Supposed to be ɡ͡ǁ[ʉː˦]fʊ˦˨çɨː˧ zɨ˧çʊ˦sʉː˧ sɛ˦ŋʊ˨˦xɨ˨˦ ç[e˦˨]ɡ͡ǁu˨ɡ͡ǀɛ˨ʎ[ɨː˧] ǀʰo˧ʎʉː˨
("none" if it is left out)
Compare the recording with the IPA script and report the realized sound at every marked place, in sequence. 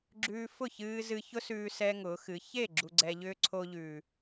ʉː˧, e˦˨, ʏː˧

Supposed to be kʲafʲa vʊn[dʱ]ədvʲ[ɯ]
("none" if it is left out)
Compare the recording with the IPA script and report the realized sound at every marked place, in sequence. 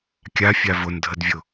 dʱ, ʊ

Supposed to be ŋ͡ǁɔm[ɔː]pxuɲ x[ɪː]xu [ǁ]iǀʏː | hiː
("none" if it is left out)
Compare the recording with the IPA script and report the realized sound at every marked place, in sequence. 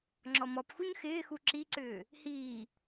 ɔ, ɪː, ǁ

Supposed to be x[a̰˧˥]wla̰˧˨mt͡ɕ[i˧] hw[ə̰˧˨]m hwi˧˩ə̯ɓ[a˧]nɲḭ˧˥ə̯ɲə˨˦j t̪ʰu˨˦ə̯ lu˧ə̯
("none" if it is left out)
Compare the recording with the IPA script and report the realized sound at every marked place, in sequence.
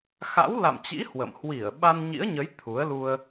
a̰˧˥, ḭ˧˥, ə̰˧˨, a˧

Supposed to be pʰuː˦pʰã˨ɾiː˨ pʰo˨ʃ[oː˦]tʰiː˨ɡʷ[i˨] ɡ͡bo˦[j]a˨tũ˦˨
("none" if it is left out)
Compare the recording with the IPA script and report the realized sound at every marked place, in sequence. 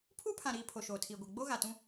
oː˨, i˨, ɣ

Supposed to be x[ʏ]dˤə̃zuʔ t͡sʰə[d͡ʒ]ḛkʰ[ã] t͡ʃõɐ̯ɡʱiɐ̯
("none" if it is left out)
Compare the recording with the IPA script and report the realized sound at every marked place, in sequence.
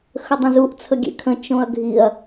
ə, ɡʲ, ə̃

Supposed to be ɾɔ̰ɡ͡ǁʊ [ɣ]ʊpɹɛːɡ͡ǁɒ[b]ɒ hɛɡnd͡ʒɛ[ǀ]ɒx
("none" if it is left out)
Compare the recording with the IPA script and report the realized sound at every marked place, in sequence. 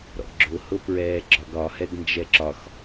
h, ɡ, ǁ

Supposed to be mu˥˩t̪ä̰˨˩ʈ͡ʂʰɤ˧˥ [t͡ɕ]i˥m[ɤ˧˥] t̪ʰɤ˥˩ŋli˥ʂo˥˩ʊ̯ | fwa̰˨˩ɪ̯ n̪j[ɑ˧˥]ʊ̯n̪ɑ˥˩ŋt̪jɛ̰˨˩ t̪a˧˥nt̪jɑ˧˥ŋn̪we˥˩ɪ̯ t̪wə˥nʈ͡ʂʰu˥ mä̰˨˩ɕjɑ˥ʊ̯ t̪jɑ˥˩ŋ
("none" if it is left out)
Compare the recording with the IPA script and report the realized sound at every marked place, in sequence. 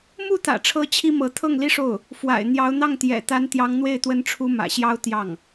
t͡ɕʰ, ɤ˧˥, ɑ˧˥

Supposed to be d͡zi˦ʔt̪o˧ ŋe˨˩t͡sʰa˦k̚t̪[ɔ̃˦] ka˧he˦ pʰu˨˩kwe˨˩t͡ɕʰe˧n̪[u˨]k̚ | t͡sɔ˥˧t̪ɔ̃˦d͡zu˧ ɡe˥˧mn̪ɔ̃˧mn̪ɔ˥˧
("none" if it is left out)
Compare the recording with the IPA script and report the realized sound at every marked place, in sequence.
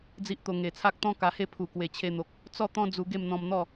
ɔ̃˦, o˨

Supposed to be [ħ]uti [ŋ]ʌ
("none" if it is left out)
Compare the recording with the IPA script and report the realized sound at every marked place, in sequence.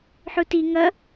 ħ, ŋ

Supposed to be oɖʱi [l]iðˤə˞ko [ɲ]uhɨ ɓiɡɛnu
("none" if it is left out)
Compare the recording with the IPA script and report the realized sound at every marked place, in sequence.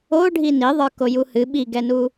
n, j

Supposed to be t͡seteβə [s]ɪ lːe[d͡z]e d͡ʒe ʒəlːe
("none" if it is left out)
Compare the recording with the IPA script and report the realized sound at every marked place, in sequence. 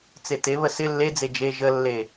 s, d͡z

